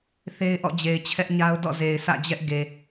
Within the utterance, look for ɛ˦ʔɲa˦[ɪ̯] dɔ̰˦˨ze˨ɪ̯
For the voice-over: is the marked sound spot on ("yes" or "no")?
no